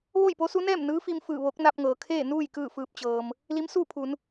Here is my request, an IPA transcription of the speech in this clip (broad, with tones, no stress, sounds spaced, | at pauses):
ʋ o˥˨ j p o˧˥ s u˧˥ n ɛː˥˨ m n ɯː˧˥ f i˧ m f ɯː˧˩ ʋ o˧˥ k̚ n a˧ p̚ ŋ ɤː˩ kʰ eː˥˨ n uː˥˨ j k ɯː˥˨ f ɯː˧ p̚ t͡ɕ ɤː˩ m | l i˧˥ m s uː˥˨ pʰ u˩˧ n